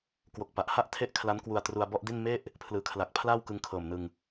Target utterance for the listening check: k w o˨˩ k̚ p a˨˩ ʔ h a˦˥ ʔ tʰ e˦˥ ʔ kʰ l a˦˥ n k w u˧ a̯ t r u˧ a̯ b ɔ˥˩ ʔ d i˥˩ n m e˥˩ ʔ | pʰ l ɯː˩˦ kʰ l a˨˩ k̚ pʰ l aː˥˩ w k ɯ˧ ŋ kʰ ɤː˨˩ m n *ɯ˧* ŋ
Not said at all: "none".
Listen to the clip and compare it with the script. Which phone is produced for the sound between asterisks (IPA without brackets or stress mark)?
ɯ˧